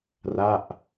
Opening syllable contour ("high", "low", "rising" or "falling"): falling